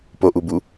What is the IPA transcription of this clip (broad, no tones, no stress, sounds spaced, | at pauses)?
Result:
p o ʔ u b u